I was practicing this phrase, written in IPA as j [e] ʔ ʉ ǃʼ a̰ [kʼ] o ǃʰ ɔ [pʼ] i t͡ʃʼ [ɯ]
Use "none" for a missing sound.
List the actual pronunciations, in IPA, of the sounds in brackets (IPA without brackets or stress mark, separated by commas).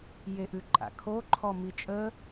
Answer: e, kʰ, m, ə